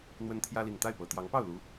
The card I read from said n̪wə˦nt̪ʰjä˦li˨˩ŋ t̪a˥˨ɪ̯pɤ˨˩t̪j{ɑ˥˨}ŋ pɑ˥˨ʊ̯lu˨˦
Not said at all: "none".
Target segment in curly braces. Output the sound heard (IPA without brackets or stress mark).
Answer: ɑ˨˦